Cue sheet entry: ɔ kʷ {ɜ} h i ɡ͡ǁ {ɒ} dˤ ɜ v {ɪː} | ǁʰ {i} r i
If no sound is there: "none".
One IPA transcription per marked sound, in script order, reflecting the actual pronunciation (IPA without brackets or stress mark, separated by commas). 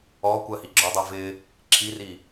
ɜ, ɒ, ɪ, i